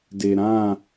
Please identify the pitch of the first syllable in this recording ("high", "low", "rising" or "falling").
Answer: low